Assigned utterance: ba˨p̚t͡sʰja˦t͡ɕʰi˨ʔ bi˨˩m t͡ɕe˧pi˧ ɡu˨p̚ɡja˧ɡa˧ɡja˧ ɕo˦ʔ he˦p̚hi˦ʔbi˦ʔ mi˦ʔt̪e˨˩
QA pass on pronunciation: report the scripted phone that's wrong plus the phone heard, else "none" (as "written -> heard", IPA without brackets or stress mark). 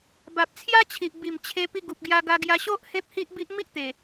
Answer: t͡ɕ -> t͡ɕʰ